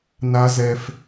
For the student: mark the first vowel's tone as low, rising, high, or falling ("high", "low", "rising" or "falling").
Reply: high